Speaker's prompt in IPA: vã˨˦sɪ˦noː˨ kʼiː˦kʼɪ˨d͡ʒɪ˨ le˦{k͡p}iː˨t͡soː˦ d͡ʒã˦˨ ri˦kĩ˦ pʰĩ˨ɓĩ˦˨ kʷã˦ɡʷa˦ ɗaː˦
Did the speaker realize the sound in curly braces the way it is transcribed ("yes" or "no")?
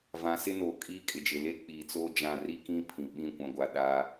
yes